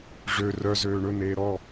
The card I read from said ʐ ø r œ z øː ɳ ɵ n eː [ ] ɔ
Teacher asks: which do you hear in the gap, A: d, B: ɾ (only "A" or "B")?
B